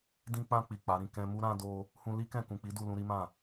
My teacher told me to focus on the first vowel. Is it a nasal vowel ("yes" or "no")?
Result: yes